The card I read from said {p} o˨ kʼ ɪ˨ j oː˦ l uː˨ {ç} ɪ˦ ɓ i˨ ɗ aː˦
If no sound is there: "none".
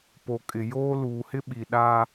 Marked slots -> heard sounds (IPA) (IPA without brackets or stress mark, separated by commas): p, h